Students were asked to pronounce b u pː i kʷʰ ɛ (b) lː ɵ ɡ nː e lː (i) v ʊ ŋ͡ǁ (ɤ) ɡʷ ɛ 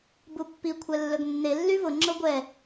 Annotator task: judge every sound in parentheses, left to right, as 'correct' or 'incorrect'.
incorrect: none, incorrect: y, correct

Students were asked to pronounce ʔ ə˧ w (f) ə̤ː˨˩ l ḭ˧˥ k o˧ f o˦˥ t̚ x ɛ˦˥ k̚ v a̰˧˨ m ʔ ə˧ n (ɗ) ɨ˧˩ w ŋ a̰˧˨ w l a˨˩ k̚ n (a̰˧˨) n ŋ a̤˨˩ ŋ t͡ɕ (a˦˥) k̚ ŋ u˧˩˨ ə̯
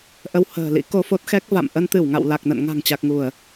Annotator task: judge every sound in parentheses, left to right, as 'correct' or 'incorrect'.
incorrect: h, incorrect: t̪, incorrect: ə̰˧˨, incorrect: a˨˩

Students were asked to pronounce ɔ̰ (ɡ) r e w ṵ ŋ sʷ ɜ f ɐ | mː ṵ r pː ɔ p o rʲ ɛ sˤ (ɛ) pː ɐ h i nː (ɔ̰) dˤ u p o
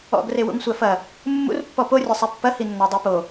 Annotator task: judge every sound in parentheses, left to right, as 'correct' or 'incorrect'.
correct, correct, incorrect: ɔ

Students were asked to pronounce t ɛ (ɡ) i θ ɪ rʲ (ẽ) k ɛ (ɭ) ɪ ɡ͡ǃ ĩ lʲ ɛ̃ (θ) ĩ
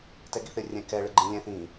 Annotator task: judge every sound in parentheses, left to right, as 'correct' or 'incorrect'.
correct, incorrect: ɛ̃, correct, correct

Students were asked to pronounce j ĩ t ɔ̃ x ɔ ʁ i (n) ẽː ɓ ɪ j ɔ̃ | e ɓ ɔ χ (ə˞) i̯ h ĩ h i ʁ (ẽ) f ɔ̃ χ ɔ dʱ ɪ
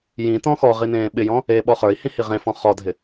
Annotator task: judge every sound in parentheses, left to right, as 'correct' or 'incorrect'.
correct, correct, correct

